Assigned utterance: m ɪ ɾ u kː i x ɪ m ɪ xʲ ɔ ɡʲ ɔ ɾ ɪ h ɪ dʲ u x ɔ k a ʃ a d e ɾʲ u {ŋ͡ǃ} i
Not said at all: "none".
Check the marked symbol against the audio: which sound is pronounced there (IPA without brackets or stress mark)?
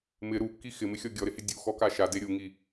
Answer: ŋ